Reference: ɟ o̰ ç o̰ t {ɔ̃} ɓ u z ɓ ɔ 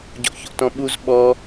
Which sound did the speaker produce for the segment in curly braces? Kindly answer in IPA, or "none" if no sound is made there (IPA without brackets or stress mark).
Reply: ɔ̃